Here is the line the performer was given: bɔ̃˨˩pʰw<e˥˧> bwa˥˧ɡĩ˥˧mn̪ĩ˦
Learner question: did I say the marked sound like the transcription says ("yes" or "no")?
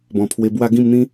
no